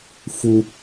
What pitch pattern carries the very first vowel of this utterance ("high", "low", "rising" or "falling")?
high